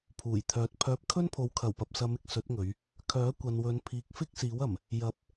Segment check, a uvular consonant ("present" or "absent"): absent